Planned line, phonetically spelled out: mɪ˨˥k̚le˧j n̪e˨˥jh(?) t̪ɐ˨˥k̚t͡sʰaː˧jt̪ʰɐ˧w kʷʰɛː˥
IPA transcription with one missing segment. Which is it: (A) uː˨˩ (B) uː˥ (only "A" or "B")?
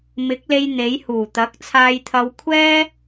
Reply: A